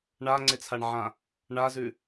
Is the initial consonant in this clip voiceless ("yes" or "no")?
no